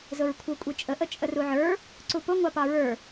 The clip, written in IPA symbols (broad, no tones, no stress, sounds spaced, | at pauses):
z ʊ ɹ kʷʰ ə˞ kʷʼ i t͡ʃʼ ə ʔ ə t͡ʃʼ ə r u ʕ ə˞ | ǀ u p ʊ ŋʷ ɑ p ɑ ɹ ə˞